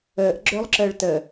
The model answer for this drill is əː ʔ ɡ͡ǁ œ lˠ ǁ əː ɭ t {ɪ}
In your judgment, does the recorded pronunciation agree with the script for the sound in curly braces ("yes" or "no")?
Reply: no